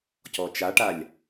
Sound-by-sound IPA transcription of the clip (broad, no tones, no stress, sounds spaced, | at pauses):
c ɔ t͡ʃ a ʈ a lʲ